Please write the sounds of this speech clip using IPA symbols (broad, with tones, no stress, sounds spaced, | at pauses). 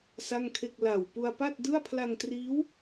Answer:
s a˥˩ ŋ kʰ e˥˩ k̚ l a˨˩ w p u˧ a̯ p a˥˩ t̚ d ɯ˥˩ a̯ pʰ l a˧ ŋ t r iː˦˥ w